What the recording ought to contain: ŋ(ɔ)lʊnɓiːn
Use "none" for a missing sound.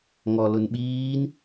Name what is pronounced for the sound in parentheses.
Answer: ɔ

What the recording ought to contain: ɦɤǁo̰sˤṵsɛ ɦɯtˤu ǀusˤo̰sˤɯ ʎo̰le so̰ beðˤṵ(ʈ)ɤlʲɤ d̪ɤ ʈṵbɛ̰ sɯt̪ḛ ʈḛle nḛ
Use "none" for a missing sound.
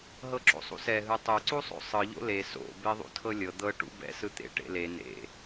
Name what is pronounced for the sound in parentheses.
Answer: tʰ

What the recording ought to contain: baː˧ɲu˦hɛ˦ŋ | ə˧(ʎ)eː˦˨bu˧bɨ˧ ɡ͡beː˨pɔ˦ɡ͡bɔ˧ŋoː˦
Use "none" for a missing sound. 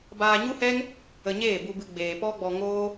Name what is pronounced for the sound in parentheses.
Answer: ɲ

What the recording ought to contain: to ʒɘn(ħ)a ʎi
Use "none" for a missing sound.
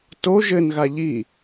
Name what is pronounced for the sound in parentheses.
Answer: ɣ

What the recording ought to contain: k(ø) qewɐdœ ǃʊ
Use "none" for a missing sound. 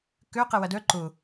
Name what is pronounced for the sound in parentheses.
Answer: ø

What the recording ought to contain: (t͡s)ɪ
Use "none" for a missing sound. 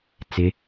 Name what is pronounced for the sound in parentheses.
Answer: t͡s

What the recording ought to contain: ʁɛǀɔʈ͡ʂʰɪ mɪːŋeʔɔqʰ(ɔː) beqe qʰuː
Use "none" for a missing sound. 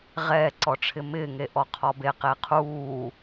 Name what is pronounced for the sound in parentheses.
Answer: ɔ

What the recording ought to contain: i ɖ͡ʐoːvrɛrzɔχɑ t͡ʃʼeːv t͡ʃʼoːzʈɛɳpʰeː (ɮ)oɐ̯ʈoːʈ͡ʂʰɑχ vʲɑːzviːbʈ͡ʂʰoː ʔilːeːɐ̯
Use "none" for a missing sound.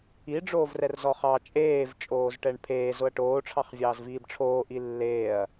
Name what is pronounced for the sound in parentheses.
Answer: z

